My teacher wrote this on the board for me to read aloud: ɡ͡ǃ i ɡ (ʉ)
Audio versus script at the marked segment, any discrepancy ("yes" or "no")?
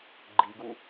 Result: yes